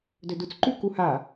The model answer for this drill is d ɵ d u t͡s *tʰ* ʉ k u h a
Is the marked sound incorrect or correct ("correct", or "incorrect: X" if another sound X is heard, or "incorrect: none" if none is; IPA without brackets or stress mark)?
incorrect: ǃ